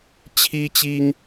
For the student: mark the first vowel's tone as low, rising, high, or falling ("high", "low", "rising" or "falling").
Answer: high